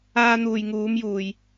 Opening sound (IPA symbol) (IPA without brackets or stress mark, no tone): aː